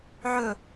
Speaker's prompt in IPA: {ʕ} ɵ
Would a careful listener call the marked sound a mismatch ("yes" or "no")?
no